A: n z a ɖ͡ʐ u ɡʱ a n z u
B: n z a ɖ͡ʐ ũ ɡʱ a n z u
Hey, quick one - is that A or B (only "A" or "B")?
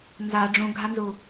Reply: B